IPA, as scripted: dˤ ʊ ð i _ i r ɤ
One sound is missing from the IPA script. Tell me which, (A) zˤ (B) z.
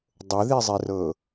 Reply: A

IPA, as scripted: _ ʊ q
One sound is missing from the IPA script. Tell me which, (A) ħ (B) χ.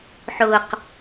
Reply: A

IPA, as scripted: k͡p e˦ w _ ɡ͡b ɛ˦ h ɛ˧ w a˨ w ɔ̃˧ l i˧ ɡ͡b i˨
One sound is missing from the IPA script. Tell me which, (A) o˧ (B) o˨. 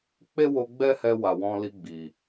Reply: A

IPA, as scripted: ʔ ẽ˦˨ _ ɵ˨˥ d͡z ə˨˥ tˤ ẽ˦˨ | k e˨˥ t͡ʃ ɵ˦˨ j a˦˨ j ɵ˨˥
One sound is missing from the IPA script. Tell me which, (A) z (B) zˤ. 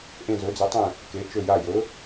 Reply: A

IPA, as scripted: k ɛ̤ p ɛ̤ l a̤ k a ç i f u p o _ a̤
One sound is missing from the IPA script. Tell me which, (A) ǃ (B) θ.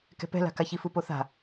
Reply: B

